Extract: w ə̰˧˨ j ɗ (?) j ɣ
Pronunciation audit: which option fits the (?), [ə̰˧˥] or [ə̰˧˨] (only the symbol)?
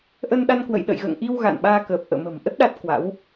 ə̰˧˨